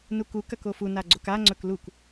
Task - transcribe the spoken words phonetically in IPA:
n u k u k ɐ k o f u n a ɡ͡ǀ o k a ŋ͡ǀ ɵ k l u k

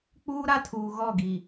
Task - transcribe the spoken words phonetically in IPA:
k͡p uː˦ ɾ a˦ tʰ uː˨ ɣ ɔ˦˨ ɡ i˨

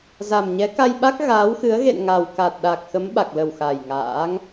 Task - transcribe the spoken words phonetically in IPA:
z a˨˩ m ɲ ɛ˨˦ k a˧ j ɓ a˦˥ k̚ ɣ aː˨˦ w x ɨ˨˦ ə̯ ɣ ḛ˧˨ n ŋ a˨˩ w k a˨˩ t̚ ɗ a˨˩ k̚ x ə˨˦ m ɓ a˨˩ k̚ l ə˨˩ w x a˨˩ j ŋ a̰ː˧˥ ŋ

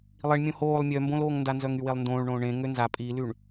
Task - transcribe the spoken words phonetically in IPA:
lˠ i ɳ mʲ õ h oː lˠ mʲ œ m b õ l oː ŋ n d a n z œ ŋ y w e lˠ n d õː ɭ ɳ õː ɳ ẽ ŋ ø n z a pʼ i l y ɳ

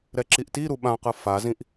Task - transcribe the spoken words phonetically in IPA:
ɾ ɛ ǁ i ʔ t i ɾ u ɓ ã q ɯ f a z ĩ ʔ

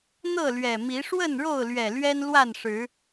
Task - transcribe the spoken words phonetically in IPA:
n̪ ɤ˥˨ l ɥ ɛ˨˩ m i˨˦ ʂ w ə˥˨ n ɻ o˥˨ ʊ̯ l ɥ ɛ˨˩ l ɥ ɛ˦ n l w a˥˨ n ʂ ɻ̩˨˦

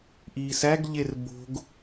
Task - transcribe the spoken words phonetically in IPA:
ʔ iː s æ ɡ ʎ e r b o̤ ɡ

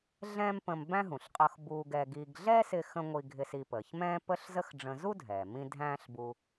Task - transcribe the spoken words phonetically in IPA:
ɮ ɛ̃ː˥ m p ə̃˧ m b æ̃˥ ɦ ũ˩ ɬ qʼ ʌ˧ x b uː˧ ɡ ɛ˧ ɡ i˧ ɡ ɮ ɛ˥ s ɪ˧ x ə̃˧ ŋʷ i˧ ɡʱ ɪ˧ s i˧ p əː˩ ç m ɛ̃ː˥ p ə˥ ɬ z ə˥ x ɖ͡ʐ ə̃˧ z u˥ dʱ ɛ˩ m ĩ˧ dʱ æ̃ː˥ ɬ b u˧

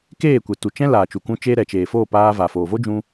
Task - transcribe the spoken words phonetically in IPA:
k eː˦˨ kʷ e˨ t u˨ t͡ʃ ɛ̃˦ l aː˨ t͡ʃ u˨ k ũ˧ t͡ʃ eː˦ ɾ ɛ˨ t͡ʃ eː˨ f o˦˨ p aː˧ v a˨ f oː˨ v o˦ d͡ʒ ũ˧

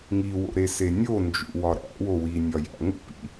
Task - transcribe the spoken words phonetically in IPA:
ŋ i w o̰ ɾ e s e nʲ o n d͡ʒ ṵ w ɒ ɾ æ̰ w o w i nʲ ɒ j æ̰ ŋ ṵ p ḭ

